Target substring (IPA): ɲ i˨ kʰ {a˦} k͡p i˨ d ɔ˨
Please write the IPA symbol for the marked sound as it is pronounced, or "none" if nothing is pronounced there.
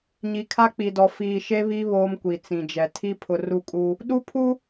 a˦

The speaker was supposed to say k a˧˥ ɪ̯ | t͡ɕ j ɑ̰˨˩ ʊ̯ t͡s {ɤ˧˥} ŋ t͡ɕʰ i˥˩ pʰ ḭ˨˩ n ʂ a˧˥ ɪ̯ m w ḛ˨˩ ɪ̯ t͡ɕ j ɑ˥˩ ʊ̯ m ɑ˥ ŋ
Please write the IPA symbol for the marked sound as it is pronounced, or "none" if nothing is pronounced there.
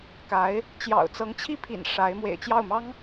ɤ˧˥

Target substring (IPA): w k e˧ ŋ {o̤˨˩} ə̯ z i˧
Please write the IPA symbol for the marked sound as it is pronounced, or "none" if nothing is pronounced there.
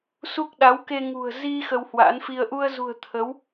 ṳ˨˩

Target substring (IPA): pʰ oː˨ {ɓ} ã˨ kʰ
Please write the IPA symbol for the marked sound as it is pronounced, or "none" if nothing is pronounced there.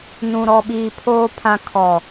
pʰ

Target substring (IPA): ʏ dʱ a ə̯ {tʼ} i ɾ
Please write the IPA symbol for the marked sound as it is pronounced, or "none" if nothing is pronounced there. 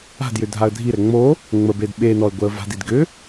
dʱ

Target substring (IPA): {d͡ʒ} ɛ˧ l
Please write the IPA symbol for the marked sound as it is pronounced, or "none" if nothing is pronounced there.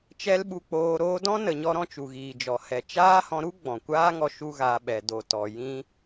t͡ʃ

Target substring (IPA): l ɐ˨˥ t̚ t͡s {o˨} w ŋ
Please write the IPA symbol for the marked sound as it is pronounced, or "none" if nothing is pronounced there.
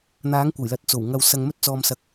o˨˩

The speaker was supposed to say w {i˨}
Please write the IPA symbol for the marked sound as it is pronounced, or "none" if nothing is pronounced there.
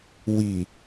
i˨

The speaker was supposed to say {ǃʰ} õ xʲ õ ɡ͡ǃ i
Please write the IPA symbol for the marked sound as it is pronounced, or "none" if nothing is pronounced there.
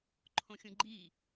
ǃʰ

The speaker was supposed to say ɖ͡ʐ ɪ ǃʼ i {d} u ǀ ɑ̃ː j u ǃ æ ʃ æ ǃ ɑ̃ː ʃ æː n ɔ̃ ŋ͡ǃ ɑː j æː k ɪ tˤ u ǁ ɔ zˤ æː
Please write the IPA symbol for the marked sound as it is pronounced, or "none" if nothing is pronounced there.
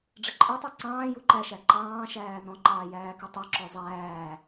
tˤ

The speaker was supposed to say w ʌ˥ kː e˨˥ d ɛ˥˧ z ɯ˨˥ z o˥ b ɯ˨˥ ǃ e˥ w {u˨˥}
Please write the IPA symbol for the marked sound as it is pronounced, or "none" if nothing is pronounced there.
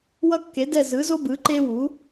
u˨˥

